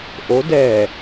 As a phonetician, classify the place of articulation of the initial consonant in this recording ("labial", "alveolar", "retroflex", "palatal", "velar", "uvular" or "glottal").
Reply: glottal